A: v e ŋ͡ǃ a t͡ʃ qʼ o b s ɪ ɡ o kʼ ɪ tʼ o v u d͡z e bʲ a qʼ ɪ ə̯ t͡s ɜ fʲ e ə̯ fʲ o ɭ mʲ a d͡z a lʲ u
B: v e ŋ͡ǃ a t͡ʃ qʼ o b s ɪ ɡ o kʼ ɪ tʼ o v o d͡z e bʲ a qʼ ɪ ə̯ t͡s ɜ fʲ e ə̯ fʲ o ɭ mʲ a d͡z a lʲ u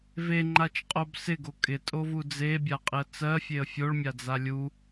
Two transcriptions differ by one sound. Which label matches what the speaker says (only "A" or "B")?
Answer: A